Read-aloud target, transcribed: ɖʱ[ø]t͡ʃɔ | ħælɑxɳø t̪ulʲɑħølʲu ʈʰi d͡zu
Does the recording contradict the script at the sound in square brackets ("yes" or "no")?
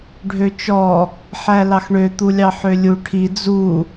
no